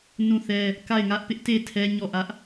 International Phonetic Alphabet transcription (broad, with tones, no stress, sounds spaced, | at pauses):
n ũ˦˨ θ ɛ˦ | k a˦˨ ɪ̯ ŋ ä˦ ʔ p ɪ˦ ʔ t e˦˨ tʰ ɛ˦ ɲ ɔ˦˨ ʔ ä˦ ʔ